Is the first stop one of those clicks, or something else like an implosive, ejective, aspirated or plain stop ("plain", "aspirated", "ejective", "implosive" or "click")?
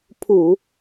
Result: aspirated